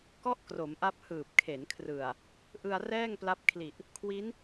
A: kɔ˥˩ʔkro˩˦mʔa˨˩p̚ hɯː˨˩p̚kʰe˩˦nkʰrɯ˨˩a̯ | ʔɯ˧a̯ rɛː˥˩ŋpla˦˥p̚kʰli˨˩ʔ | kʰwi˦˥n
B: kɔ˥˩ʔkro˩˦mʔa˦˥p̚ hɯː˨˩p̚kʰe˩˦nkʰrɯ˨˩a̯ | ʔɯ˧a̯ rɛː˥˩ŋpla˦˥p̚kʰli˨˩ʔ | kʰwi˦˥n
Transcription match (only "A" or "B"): B